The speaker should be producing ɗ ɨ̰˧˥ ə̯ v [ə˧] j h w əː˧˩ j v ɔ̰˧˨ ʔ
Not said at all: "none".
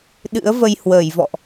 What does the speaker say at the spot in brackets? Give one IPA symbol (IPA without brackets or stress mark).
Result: ə˧